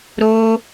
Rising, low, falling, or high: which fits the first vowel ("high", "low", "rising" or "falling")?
high